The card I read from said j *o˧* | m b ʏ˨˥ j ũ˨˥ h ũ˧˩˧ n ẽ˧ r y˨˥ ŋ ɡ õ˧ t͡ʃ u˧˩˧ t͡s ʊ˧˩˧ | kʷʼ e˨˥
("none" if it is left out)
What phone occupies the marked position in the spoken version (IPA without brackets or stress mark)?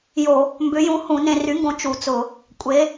o˧˩˧